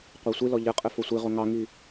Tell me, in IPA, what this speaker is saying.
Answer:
qʷɜsʷilɔ ʎɘqʼɘ fosʷiʁo ŋɑŋi

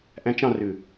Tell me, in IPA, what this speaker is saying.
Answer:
ʔæ̃t͡ʃ ɑ̃rʉ

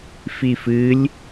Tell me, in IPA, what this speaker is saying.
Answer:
fifɨlʲ

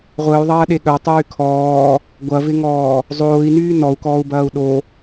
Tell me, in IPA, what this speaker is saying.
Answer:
ʁʷəːy̯ðˤɐːɗe ɠœtˤyː kʰɔː | ɡʷɐvɪŋɔː | zˤoːi̯nyː nɔu̯kɔːu̯bɐːu̯ ɗo

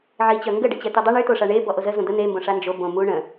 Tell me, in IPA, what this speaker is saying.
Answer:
ʕit͡ɕœ ŋɡəɖə t͡ɕɛt̪ydˤə ɳyt̪oʂa ɳe bɔʔozə zõd̪ə n̪embõ ʂand͡ʒo bõmu ɳə̃

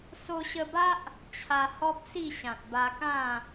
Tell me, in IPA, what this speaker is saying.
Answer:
so˧ɕə˧ba˦ʔ | t͡ɕʰa˧hɔ˦p̚si˥˧ɕã˨t̚ ba˧kã˥˧

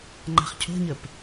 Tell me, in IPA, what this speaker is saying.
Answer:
ŋ͡ǃa̤χcʰo̤ɲəp

